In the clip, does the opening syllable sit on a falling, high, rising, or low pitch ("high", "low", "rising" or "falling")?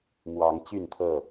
rising